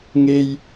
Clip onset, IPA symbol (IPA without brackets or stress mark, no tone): ŋ